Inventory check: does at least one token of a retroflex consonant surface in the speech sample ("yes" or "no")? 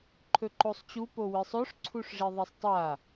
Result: yes